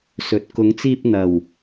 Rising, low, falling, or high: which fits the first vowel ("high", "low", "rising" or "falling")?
low